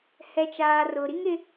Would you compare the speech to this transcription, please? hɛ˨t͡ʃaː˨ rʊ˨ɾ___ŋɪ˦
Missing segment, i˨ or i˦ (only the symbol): i˦